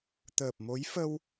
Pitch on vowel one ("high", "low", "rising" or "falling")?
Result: low